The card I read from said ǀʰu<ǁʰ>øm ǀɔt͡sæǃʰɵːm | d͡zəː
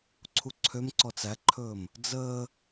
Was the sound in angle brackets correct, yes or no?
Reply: no